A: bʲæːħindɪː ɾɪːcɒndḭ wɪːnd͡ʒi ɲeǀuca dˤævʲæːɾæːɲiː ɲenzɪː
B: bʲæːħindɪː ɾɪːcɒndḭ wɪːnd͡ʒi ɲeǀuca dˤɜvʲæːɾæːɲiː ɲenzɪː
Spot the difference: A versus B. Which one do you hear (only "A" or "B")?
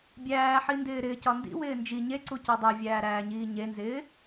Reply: A